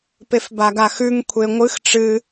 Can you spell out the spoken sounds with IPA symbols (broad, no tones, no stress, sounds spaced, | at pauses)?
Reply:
p e f b a ɡ a x ʉ ŋ kʷʰ e ŋʷ ɨ x ʈ͡ʂ ɨ